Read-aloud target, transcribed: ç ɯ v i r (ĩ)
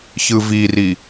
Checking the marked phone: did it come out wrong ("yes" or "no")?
yes